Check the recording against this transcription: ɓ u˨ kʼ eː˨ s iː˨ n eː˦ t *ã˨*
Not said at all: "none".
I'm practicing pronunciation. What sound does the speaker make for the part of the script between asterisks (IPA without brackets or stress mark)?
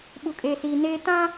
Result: ã˦